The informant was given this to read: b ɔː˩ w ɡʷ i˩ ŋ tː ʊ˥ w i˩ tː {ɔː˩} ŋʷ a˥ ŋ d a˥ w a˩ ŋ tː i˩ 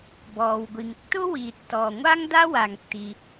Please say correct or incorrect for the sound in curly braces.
correct